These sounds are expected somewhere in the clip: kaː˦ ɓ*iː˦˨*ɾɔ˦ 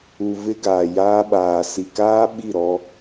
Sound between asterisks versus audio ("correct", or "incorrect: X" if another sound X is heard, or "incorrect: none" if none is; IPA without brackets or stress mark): incorrect: i˦˨